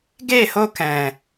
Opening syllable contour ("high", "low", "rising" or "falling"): falling